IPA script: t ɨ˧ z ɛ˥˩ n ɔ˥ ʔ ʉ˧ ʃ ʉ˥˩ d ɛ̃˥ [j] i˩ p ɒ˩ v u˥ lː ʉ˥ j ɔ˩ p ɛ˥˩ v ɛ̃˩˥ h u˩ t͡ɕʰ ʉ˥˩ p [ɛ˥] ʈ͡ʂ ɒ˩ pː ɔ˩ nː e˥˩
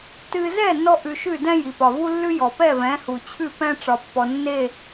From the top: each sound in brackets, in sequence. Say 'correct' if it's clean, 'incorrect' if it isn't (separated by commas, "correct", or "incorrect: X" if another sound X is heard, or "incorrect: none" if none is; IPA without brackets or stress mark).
correct, incorrect: ɛ̃˥